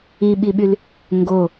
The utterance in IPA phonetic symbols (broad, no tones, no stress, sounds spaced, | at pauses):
i ɓ i ɓ y l | ŋ ɡ o